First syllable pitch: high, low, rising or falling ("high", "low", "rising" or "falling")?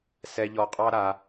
low